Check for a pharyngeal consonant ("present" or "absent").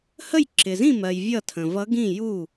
absent